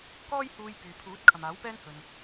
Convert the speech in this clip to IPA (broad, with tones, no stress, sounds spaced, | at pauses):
k ɔː˥ j h uː˧ j p yː˨ pʰ uː˨˥ t̚ kʰ ɐ˨ m aː˨˥ w p ɛː˥ n h ɵ˧ n